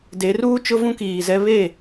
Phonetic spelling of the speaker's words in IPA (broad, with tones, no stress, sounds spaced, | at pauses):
d e˨˦ r uː˦ t͡ʃ ʊ˦ v ũ˦ k iː˨ z ɛ˦ β e˦˨